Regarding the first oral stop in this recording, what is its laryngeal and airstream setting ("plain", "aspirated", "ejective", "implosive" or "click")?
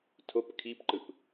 aspirated